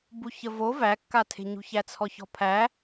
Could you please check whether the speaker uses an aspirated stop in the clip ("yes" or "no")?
yes